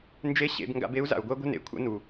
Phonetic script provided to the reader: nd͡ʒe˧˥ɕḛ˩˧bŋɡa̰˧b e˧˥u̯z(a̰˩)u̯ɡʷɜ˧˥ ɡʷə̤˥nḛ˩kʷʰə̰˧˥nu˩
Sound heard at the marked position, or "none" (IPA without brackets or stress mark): a̰˩